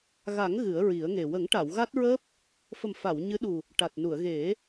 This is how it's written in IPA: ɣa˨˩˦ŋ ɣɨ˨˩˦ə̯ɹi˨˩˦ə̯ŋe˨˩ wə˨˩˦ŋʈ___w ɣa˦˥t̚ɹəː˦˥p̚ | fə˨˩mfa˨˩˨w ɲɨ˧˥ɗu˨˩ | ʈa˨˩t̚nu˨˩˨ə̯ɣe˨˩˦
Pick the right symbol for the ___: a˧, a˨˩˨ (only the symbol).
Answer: a˨˩˨